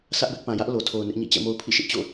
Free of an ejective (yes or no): yes